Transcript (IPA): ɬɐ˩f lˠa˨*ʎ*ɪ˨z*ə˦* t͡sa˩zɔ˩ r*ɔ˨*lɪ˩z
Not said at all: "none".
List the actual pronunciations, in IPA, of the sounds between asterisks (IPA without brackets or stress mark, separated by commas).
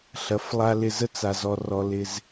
l, ə˦, ɔ˩